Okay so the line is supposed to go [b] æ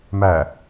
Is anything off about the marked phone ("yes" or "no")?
yes